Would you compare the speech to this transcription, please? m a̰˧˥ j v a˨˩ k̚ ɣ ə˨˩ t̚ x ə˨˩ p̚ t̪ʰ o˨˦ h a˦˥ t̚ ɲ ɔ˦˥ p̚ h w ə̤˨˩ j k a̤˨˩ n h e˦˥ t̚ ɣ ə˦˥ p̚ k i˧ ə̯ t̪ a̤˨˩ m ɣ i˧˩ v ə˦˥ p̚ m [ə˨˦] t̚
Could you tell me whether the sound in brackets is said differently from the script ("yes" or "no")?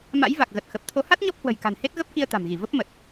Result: yes